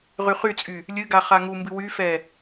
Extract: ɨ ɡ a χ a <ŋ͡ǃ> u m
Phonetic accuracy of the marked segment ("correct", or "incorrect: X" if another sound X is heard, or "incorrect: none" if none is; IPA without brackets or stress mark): incorrect: ŋ